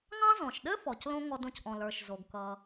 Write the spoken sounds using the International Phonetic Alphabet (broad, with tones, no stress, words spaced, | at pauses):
ŋɑ̃˦zɔ̃˩ʃɗɘ˥fɔ˩c lõ˦ ŋɔ˨dõ˨cʔɔ̃˩lə˞˩ʃ zo˩ɡ kʌ˩